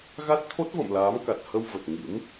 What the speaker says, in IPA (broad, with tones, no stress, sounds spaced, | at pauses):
ɣ a˦˥ t̚ t̪ʰ o˦˥ t̚ v ə̰˧˨ m l aː˨˦ m k a˨˩ t̚ h ə˧ w v ə˨˩ t̚ ŋ ḭ˧˥ m